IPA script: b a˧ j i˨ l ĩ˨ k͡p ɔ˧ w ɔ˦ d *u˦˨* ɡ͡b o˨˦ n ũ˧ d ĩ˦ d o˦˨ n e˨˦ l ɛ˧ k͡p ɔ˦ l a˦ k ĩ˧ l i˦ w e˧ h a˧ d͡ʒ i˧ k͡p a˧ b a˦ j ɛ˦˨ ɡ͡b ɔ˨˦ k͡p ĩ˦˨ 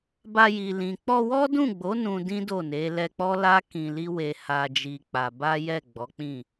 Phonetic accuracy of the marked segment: incorrect: ũ˦˨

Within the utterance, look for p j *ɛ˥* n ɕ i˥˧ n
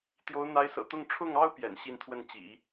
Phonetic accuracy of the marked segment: incorrect: ɛ̰˨˩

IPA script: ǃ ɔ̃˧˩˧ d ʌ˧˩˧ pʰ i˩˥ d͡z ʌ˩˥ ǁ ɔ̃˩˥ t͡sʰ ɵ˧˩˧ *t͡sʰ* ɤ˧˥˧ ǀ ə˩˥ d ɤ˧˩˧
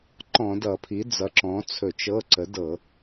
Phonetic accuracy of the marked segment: incorrect: t͡ʃ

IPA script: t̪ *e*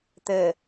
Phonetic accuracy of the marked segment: incorrect: ɘ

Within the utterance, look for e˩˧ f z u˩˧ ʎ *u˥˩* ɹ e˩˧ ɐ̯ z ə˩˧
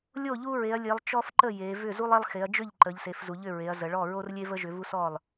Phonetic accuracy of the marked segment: incorrect: ʏ˥˩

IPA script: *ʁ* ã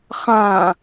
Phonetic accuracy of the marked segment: incorrect: χ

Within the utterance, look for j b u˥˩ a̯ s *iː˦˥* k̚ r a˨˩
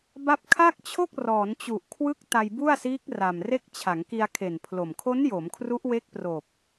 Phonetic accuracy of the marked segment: correct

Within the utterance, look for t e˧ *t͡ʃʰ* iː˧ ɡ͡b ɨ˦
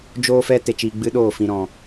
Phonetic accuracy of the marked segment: incorrect: t͡ʃ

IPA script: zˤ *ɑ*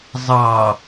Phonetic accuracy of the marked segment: correct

